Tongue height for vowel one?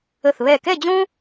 mid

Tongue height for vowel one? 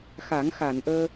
low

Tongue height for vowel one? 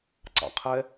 low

